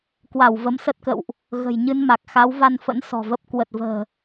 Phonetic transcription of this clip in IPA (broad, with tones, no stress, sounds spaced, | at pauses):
k w a˧˩ w v ə˨˦ m s ə˦˥ t̚ k ə̰˧˨ w ʔ | ɣ ə̤˨˩ j ɲ ɨ˧ n m a˨˩ k̚ x a˨˦ w v a˧ n f ə̰˧˥ n s ɔ̤˨˩ v ə˦˥ p̚ k w ə˨˩ t̚ v ə̤ː˨˩